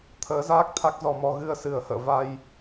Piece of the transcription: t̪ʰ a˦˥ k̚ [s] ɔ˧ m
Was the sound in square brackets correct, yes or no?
no